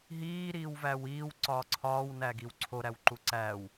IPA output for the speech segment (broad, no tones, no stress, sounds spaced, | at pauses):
ɦ iː ɾ iː w v æ w iː w ǀ ɒː ǀʰ ɒː w n æ ɡ i w ǀʰ o ɾ æ w ǃ u ǀ æ w